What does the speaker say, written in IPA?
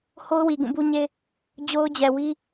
h o˦ ʊ̯ w i˨ ɡ ũ˦˨ b u˦ ɲ e˦ | d͡ʑ o˦ ʊ̯ d͡ʑ ɛ˨ w i˦

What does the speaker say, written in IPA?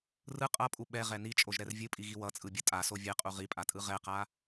r ɯ qʼ ʌ pʼ u ɓ ɛ ʁ ɛ n i t͡ʃʼ o ʒ ɾ ɛ r vʲ ɯ pʼ i ɣ i w ʌ t͡sʼ ɯ bʲ ʌ tʼ a s o vʲ ɛ qʼ u ʁ i pʼ a tʼ ɯ ʁ ɛ q a

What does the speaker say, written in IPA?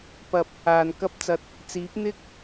p ɐ˨ p̚ | aː˨ n k ɐ˥ p̚ t͡s ɐ˧ t̚ | t͡s iː˨˥ p̚ n̪ ɪ˥ k̚

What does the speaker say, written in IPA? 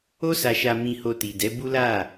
o˦ s a˧ ʃ a˧ m ĩ˧ h o˧ t i˨ d ɛ˨˦ b u˦ l a˦˨

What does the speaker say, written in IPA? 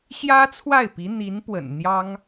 ɕ j ä˥ t͡sʰ w a˥˩ ɪ̯ p i˧˥ n̪ i˧˥ n p w ə̰˨˩ n n̪ j ɑ˥ ŋ

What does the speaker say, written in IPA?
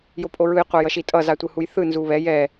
j o pʼ o ɹ ɯ j qʷ a j ʌ ʃ i tʼ ʌ z a tʷ ɯ h u j θ ɯ n z u β ɛ j ɛ

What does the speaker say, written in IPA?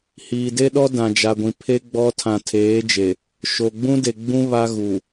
h iː˨ d e˦ ɗ ɔ˦ d ã˨ d͡ʒ a˨ ɡʷ ĩ˨ pʰ e˦ ɡ͡b ɔ˦ tʰ ã˨ tʰ eː˨˦ d͡ʒ e˨ | ʃ o˨ ɡ͡b ũ˦ d e˨ ɡ͡b ũ˦ β a˦ ɣ u˨

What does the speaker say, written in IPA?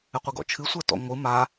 ɘ qʷ ɘ ɡ ɔ̰ t͡ʃʰ ɨ sʷ ɛ t ɔ̰ ŋʷ ɨ m a

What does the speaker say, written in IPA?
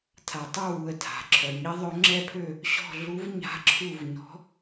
tʰ a˨ tˤ ø˦˨ w u˨ ə̯ tʰ a̤˨ ǁʰ œ˨ ɲ i˧˥ ðˤ ø˧˥ ŋ͡ǁ ɛ˦˨ pʰ ø˦˨ | ɕ ɔ̤˦˨ ɮ u˧˥ v ɲ a̤˧˥ ǁʰ u˦˨ v ɲ ɔ̤˧˥

